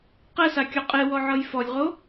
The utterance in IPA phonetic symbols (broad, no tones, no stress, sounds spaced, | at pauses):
q ɛ s a kʲ ɔ qʼ e w ɔ ʕ ɤ j f ɔ lʲ ʁ o